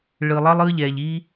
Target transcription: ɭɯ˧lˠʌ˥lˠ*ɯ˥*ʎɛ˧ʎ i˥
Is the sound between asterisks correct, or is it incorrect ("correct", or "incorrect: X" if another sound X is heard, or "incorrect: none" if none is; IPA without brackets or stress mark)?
correct